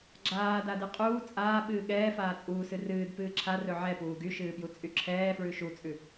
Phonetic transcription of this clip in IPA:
ɡ͡ǁ aː d a d ɨ qʼ uː t͡sʼ aː ɓ ɨː ɠ ɛː f aː t͡sʼ uː s ɨ r ɨː d p ɨː ǁʰ a r ɵ ʕ ɛ p uː ɡ y ʃ ɨː p j u t͡sʼ y ǁʰ ɛː f ɹ ʉ ʃ u t͡sʼ ʉ

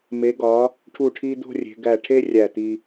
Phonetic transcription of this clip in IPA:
m e˩˧ ɡ ɒ˩˧ | ʈʰ u˧˩ ʈʰ i˧ d̪ o̤˥˧ rʲ e̤˩˧ ɡ æ˧˩ ʈʰ e˥ rʲ æ˧˩ t̪ i˧

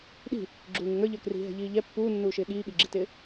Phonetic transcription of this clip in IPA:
ɗ i̤ | ɡ͡ǁ uː ŋ ɪ ŋ ə˞ ʎ ə˞ k r i̤ ɦ ɛ̤ ʎ iː ʎ ɛ pː uː nː uː ʃ ɪː ɠ iː ɠ i ɡ͡ǁ i t ɪː

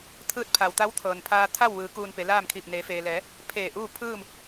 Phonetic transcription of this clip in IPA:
t̪ʰ ɯː˧˥ t̚ pʰ a˩ w t̪ a˧˥ w t̪ʰ ɤː˩ n pʰ aː˧ t̪ʰ a˥˨ w ʋ ɯː˩˧ k uː˧ n p e˩˧ l aː˥˨ m kʰ iː˧˩ p̚ n eː˩˧ f eː˩ l ɛː˩˧ | pʰ eː˧˩ ʔ uː˥˨ pʰ ɯː˥˨ m

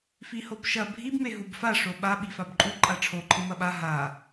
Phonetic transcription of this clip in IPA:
f i h o b ʃ ɐ bʱ i b m e ɦ u b f a ʂ o ɓ a ɓ i f a b ǃʼ u ǃʼ a ʈ͡ʂʰ o ǃʰ ɨ m ɐ ɓ a ɦ a

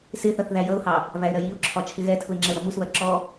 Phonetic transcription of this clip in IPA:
s ɪ θ ʌ θ ð æ j ʌ ʊ̯ h ɑ | v æ ɪ̯ ɾ ɜ j i ʊ̯ ǁʰ ɒ t͡ʃʰ ɪ ɣ ɛ tʰ ʊ ɪ̯ ŋ͡ǁ ɛ ʊ̯ ɾ ʌ m u s β ɜ ǁ ɔ

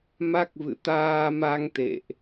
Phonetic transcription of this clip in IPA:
m a˦˥ k̚ v ɨ̰˧˨ t̪ aː˧ m a˧ ŋ t̪ ḛ˧˨ ʔ

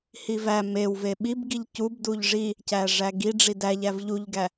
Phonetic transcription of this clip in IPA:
h i v æ m e w v e ɓ i b ɡ i ʎ c u b d u ʎ ʐ i | c æ ʐ æ ɡ i ɖ͡ʐ i d æ ʎ æ v ʎ u ʎ ɡ æ

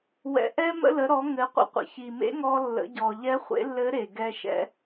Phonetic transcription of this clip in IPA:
w ɛ̰˩ ʔ ɛ˧ m ə̰˧ l ə˩˧ ɾ ɔ˩˧ ŋ ɘ˩˧ qʷ ə̰˧ qʷ ə̰˩ ç i˩ m ḛ˧˥ ŋ ɔ˧ lː ə̰˩˧ ɟ ɔ˩ ʎ ɛ˧˥ χʷ ḛ˧˥ lː ɘ˧˥ ɾ e˩ ɡ ɛ˧ ʃ ɛ̰˧˥

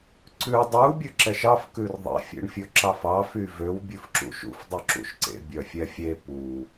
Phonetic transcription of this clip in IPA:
ǀ ʉ dˤ u bʲ ʉ ǁ ɛ ʃ ɑ f k ʉ r ðˤ ḛ fʲ ḛ ɳ fʲ ɵ ǁ ɑ f ɑ f y v ø w bʲ ʉ f ǁ ṵ ʃ ṵ f dˤ ʉ ǁ ṵ ʃ ǀ ḛ bʲ œ fʲ ɛ fʲ e p u

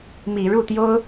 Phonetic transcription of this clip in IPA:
m i˨˩ ɻ u˥˩ t̪ j o˥ ʊ̯

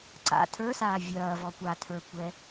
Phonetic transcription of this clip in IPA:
ǀ a̰ tʰ ə˞ s aː vʲ ɐː v ɔ kʷ a tʰ ə˞ kʷ ɛ

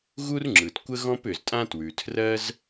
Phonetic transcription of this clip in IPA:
ɣ u˥ r ŋ͡ǁ ɯ˩ t kʷ ə˥ ɣ ɔ̃˥ p ʏ˩ z tʼ ã˥ t w ʉ˩ tʰ r ɜ˥ z

